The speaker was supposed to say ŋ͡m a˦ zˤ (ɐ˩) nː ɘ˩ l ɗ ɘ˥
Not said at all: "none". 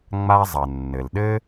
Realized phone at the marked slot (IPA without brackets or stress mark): ɐ˩